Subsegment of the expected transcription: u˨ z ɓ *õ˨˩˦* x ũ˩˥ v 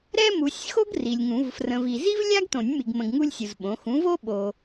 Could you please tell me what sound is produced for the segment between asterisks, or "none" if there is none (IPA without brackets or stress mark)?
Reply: õ˩˥